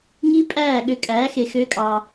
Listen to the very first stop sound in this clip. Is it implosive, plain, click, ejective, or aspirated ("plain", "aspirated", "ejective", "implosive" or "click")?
ejective